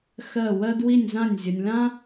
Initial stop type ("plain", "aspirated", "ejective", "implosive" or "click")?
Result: plain